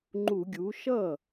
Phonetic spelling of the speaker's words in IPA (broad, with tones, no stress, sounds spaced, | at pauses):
ŋ͡ǃ u˧˩˧ ɡʲ u˩˥ ʃ ʌ˥˩